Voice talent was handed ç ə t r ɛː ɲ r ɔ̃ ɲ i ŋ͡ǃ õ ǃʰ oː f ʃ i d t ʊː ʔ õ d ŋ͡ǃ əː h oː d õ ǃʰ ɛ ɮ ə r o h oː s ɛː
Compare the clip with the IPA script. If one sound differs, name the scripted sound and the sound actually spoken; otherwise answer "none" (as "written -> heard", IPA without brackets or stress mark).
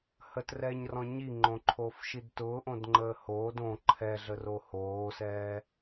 ç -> h